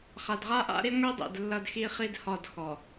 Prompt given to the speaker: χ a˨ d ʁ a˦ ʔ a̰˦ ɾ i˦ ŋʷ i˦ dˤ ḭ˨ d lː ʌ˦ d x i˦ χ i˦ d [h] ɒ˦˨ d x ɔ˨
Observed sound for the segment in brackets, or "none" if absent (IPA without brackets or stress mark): h